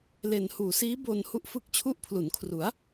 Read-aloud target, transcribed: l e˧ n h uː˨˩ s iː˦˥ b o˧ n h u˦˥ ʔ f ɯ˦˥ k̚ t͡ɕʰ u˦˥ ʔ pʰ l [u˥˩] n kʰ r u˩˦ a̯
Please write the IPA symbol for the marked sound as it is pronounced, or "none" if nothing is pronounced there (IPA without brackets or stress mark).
u˩˦